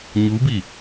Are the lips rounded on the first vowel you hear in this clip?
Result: yes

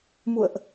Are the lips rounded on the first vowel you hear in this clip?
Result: yes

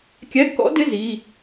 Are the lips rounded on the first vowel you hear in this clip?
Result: no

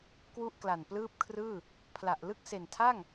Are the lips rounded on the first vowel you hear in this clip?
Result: yes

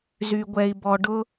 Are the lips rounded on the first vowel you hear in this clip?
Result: yes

